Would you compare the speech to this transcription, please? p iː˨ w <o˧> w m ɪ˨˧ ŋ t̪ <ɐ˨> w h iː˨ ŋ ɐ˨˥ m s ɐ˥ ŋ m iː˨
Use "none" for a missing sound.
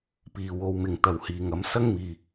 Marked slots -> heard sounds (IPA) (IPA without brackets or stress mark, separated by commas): o˨˧, ɐ˨